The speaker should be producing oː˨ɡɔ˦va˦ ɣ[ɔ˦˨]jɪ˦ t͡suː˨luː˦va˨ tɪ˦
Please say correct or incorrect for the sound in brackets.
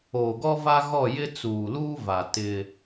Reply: correct